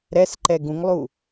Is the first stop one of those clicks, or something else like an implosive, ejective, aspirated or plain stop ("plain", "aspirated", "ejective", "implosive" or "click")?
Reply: click